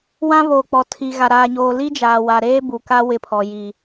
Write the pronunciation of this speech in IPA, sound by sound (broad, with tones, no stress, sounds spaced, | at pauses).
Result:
w ã˦ β oː˨ k͡p ɔ˨ tʰ i˨ ɣ a˨ ɾ aː˨ ɲ oː˨ l i˦ d͡ʒ aː˨ w a˨ ɾ eː˦ b u˨ k a˦ w ɪ˦˨ pʰ ɔ˨ j i˨